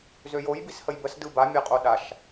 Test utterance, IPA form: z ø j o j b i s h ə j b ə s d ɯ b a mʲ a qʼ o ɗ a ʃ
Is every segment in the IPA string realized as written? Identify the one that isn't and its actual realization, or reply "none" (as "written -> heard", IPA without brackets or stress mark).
none